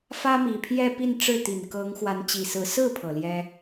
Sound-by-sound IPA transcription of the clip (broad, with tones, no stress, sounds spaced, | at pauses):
f ä˥ m i˨˩ pʰ j ɛ˥˧ p i˥˧ n ʈ͡ʂ ɻ̩˥˩ t̪ i˨˩ n k ɤ˧˥ ŋ x w a˧˥ n t͡ɕ i˨˩ s ɹ̩˧˥ s ɹ̩˥˩ pʰ ɤ˨˩ l j ɛ˥